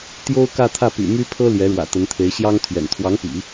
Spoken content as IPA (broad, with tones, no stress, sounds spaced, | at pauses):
t̪ j o˥ ʊ̯ k ä˥˧ t̪ʰ ä˥˩ p y̰˨˩ m y˥ pʰ ɤ˥ l j ɛ˧˥ ɻ w ä̰˨˩ t̪ ə˧˥ n t̪ʰ e˧˥ ɪ̯ ɕ j ɑ˥ ŋ t̪ʰ ɥ ɛ̰˨˩ n t̪ʰ w ɑ˧˥ ŋ p ḭ˨˩˦